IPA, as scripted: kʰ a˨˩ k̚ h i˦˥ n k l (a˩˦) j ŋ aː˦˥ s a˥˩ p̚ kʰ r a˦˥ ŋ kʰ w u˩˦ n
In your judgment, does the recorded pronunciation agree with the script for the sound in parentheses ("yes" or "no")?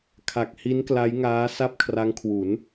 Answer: no